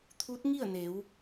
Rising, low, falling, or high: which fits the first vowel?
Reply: rising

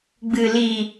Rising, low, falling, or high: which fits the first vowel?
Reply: low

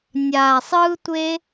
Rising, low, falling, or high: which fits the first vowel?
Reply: low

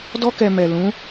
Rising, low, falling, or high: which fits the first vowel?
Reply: high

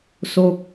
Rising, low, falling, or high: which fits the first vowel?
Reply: falling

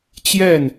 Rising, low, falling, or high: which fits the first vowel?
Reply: falling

